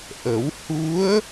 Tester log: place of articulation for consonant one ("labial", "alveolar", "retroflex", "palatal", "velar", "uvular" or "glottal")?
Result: glottal